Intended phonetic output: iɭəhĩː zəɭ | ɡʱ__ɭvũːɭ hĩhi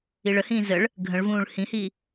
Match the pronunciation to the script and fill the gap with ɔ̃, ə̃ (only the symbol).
ə̃